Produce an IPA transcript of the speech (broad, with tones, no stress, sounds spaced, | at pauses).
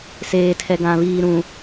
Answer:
s eː˨ tʰ ɛ˨ ɡ ã˨ β iː˨ ɾ ũ˨